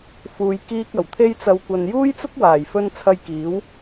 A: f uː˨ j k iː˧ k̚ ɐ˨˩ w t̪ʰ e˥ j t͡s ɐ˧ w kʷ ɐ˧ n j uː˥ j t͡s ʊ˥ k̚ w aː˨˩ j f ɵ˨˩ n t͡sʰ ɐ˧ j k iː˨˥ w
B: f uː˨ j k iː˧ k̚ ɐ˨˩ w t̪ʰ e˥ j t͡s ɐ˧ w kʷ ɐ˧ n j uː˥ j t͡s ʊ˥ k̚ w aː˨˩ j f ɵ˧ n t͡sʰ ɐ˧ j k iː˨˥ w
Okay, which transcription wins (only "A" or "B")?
B